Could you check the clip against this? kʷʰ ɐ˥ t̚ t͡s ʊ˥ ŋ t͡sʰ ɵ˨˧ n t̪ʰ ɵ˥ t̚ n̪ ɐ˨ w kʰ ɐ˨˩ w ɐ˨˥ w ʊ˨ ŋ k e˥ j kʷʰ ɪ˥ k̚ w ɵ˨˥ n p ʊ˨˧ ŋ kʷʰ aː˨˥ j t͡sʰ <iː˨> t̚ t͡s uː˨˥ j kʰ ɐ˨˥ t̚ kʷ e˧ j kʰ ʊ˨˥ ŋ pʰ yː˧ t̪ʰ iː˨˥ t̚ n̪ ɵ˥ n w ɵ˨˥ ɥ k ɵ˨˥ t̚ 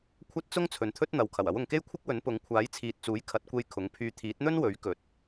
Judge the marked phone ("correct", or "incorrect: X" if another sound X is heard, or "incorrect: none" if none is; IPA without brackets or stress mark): correct